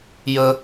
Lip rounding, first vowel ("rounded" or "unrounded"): unrounded